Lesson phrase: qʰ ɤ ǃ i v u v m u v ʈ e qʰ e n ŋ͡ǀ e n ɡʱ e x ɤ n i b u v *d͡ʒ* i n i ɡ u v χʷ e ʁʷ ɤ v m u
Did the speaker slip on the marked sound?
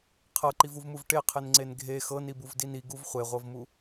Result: yes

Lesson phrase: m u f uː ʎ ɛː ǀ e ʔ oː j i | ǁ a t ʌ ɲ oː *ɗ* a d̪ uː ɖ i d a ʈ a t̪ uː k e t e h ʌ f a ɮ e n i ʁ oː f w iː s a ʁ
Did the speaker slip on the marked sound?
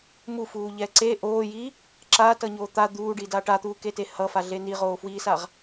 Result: yes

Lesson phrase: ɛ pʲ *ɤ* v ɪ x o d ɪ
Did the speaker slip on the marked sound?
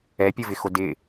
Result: no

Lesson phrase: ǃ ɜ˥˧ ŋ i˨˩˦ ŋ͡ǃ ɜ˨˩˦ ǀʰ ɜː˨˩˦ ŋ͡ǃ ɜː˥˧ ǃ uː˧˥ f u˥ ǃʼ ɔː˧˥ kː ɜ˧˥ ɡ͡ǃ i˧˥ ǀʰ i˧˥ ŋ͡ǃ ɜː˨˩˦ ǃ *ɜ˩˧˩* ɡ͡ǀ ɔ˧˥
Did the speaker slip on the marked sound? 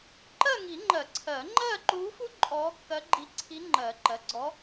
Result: no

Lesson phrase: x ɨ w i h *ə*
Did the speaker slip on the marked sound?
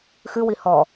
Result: yes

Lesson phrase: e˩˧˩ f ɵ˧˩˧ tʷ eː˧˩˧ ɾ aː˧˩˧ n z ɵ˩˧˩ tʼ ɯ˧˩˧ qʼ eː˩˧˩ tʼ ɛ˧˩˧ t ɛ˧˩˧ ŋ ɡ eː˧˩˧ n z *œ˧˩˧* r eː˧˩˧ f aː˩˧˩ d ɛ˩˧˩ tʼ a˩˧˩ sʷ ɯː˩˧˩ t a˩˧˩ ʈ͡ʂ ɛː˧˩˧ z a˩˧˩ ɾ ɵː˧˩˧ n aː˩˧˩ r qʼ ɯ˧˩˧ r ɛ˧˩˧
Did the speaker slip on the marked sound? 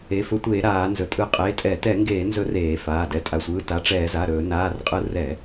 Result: yes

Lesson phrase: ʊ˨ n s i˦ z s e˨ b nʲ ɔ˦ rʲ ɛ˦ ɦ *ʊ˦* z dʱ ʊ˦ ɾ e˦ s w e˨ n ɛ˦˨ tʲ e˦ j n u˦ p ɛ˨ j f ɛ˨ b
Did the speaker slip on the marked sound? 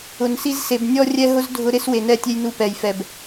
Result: no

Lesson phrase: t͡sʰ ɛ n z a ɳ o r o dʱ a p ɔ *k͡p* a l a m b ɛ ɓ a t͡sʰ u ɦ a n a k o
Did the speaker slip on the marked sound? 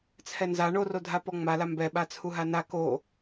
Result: yes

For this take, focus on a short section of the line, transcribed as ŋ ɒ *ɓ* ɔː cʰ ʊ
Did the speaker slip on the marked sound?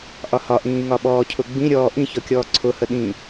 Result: no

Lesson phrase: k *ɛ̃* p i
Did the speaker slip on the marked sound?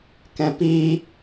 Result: no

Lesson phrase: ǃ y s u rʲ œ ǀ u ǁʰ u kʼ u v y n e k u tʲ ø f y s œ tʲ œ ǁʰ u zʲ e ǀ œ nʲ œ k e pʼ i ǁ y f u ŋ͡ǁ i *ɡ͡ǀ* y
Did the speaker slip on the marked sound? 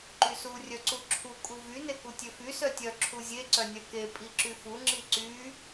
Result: yes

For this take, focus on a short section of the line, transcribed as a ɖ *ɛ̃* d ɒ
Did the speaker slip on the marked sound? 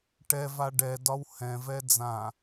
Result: yes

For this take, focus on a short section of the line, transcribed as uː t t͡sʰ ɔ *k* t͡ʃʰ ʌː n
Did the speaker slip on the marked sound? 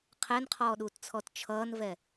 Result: yes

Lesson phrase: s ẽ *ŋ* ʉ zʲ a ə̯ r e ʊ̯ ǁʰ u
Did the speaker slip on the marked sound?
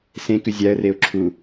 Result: yes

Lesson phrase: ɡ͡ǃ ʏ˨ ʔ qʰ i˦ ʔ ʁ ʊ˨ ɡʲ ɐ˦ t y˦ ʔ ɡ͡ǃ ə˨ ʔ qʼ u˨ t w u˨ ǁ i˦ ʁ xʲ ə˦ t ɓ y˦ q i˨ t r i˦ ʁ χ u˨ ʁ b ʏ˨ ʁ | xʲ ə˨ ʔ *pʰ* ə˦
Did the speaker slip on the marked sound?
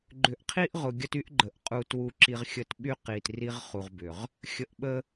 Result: yes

